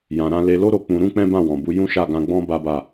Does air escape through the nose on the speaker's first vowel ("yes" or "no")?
yes